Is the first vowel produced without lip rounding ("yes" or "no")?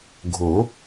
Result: no